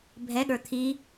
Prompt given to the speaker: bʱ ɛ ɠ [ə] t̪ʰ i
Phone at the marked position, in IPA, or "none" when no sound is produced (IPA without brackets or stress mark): ə˞